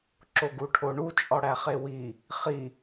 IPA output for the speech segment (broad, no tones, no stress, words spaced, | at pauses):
ǁoɡuʈʰoɳu t͡ʃʼɒɽæχewi | χi